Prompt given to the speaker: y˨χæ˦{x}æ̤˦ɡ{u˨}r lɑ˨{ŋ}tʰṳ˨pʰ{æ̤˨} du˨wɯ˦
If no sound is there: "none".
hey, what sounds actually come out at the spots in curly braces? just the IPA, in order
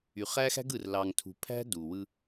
x, ɯ˨, ŋ, æ̤˦

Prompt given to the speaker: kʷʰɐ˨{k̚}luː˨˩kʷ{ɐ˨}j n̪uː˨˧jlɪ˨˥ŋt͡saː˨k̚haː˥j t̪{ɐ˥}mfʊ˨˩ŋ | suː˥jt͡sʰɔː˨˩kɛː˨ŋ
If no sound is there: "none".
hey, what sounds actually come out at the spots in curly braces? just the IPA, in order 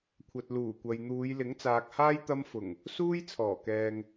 t̚, ɐ˨, ɐ˥

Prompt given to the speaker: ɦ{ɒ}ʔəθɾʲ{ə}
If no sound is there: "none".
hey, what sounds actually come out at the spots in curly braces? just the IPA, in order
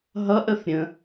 ʌ, ə̃

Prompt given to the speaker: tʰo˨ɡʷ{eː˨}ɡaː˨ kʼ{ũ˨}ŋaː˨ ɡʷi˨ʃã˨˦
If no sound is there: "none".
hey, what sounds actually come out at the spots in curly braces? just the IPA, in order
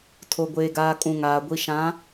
eː˨, ũ˨

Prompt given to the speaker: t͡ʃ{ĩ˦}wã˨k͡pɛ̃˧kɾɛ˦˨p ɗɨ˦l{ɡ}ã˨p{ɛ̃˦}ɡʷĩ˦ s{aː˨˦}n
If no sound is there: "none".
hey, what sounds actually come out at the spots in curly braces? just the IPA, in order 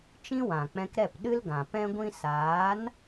ĩ˦, ɡ, ɛ̃˦, aː˨˦

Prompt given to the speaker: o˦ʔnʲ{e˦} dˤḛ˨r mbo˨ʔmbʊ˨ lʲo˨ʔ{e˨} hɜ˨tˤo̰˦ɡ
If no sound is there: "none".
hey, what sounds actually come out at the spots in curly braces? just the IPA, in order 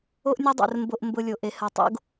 ɛ˦, e˨

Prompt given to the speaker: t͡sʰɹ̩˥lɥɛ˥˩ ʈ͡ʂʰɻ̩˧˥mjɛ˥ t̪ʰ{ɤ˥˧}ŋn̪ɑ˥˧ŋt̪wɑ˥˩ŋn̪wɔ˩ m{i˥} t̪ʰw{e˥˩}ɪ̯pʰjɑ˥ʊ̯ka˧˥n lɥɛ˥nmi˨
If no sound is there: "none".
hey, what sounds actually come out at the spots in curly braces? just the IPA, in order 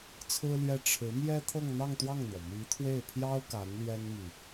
ɤ˥˧, i˧˥, e˥˩

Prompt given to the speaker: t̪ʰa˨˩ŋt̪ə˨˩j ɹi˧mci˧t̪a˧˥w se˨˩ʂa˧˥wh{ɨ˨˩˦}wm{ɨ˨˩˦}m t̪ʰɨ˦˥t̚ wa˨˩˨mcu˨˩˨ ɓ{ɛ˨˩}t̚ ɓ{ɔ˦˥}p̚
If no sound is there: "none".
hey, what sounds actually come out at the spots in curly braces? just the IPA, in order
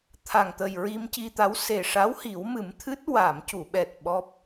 i˨˩˦, ɨ˨˩˦, ɛ˨˩, ɔ˦˥

